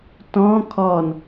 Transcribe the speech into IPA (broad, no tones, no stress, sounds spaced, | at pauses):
t ɔ̃ kʰ ɔ n